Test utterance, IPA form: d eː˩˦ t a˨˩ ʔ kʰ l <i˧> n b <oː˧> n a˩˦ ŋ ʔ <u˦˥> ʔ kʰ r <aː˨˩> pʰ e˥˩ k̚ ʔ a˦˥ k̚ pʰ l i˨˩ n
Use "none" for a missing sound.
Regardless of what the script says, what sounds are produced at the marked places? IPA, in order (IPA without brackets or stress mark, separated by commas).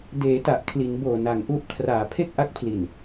i˩˦, oː˨˩, u˦˥, aː˨˩